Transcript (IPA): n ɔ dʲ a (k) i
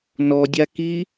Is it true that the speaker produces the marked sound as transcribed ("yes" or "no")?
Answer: yes